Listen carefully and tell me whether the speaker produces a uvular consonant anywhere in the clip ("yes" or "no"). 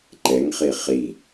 yes